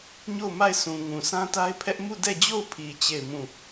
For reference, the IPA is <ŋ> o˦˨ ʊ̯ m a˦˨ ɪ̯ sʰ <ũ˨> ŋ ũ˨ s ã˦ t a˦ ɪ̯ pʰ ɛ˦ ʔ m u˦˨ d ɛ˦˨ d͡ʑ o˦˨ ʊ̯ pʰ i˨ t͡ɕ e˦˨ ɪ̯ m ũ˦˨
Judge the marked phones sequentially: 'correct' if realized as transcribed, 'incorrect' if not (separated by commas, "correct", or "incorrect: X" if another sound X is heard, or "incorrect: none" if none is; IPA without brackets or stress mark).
incorrect: ɲ, correct